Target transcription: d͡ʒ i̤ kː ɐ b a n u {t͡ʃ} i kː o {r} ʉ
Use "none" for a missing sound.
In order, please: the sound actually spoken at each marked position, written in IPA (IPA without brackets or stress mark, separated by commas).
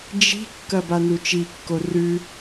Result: t͡ʃ, r